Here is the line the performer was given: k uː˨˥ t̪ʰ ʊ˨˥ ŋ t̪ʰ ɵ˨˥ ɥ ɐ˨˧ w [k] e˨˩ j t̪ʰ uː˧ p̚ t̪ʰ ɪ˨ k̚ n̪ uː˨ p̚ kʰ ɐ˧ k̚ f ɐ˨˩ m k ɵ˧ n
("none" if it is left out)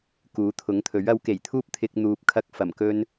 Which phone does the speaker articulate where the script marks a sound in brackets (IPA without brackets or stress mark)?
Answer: k